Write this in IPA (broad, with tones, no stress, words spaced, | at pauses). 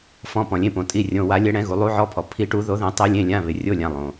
fɔ̃˩˧˩pɔ̃˩lʲẽ˩˧˩põ˩ tʼi˩˧˩rʲõ˩˧˩wa˨˩˦ lʲɛ˨˩˦ɽɛ̃˨˩˦ɣu˩ lˠu˨˩˦ʕɔ˩˧˩pʰɔ˩ pʰi˨˩˦ʈu˨˩˦ ðo˨˩˦ðɛ̃˨˩˦ tˤe˨˩˦lʲẽ˩˧˩lʲã˩˧˩ βɪ˩rʲo˩˧˩lʲã˩ lˠõ˩